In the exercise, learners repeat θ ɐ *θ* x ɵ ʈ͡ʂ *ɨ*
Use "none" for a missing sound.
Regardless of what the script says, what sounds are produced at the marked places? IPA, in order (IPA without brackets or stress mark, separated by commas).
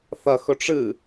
none, ɨ